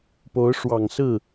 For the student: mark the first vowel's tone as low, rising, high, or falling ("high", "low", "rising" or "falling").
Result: rising